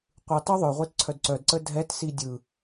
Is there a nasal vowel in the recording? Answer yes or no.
no